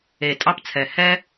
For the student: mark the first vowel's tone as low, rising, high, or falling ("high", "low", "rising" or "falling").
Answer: low